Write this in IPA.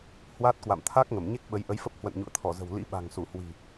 h w aː˦˥ t̚ k w a̰˧˨ m t̪ʰ a˦˥ k̚ ŋ ə˧˩ m ɲ e˦˥ k̚ ɓ ə˨˦ j ʔ ə˨˦ j f ə˦˥ p̚ h w ə̰˧˨ n ɲ ṵ˧˨ ə̯ t̪ʰ ɔ˧˩ z ə̤˨˩ w l ḭ˧˥ ɓ a̤˨˩ ŋ s u˧˩ h w i̤˨˩

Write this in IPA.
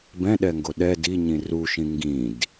b ɛ̃ ɗ ɛ ŋ ɡ o ɗ ɛ d i ɲ ĩ r u ʃ ĩ ŋ ɡ ĩ d

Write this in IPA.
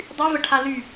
dˤ y v ə ʈʰ a l y

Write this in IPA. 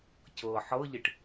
c ɤ ħ ɤ ʎ i ʈ

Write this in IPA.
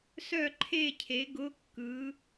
s œ˥˨ ǃʰ e˥˨ cʰ e˩˥ ɡ ʊ˩˧˩ kː ɯ˩˧

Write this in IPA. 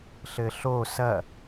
ɬ ɘ ɬ o s ɐ

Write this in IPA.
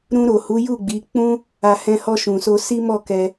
ɾ ũ˧ ɾ o˨ h u˨˦ j u˦˨ ɡ͡b i˨˦ k͡p ũ˦ | a˧ h ɛ̃˧ h ɔ˧ ʃ ũ˨ s o˧ s i˦ m ɔ˦˨ k ɛ˧

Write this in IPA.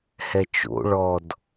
h ɛ t͡ʃ o̰ ɭ ɔ d

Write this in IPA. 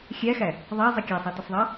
xʲ æ x æ | ðˤ ɑ zˤ ɛ kʲ æ sˤ ɑ t ʌ sˤ ðˤ ɑ

